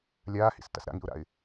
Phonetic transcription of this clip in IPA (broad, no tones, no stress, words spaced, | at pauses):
lʲaːhḭs ta̰sɾa̰ŋḭʊ̯ɾa̰ɪ̯